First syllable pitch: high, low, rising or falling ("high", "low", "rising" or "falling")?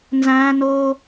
high